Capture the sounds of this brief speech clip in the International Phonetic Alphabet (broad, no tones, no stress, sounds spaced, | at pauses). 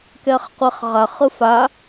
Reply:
k ɛ χ qʷ e χ ʁ a χ ɯ f a